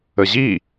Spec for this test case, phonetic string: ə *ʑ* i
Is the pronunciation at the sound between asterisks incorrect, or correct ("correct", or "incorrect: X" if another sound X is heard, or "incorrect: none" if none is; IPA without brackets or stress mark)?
correct